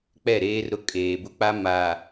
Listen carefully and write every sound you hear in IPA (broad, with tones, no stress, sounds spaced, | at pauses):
k͡p ɛ˦˨ ɾ eː˦ r ɾ ʊ˦ kʼ eː˨ b ʊ˦ k͡p a˦ m a˨